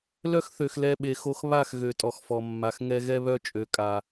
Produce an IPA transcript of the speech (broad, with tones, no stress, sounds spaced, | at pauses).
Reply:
l œ˦ x θ ø˨ x l ɛ˧ ɓ e˨ x o˧ x β a˦˨ x ɣ ø˨ tʼ ɔ˨ x f ɔ˨ mː a˨ x ŋ ɛ˧ ɣ ɛ˦ β œ˦ t͡ʃʼ ø˨ kʼ a˨